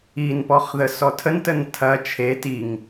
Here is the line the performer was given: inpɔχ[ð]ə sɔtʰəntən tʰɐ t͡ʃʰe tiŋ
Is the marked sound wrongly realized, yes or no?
no